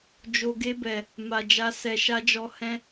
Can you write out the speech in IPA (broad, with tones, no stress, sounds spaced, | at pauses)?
d͡ʒ o˨ ɡ e˧ b ɛ˨ | m a˨ d͡ʒ a˧ s ɛ˨ ʃ a˧ d͡ʒ ɔ˧ h ɛ̃˧